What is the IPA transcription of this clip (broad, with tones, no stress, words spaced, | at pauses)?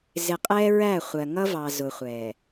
zɪ˨qʼɛ˦ɹæ˦˨χʷɜ˨ ŋʌ˦vɑ˨ zʊ˨χʷɛ˨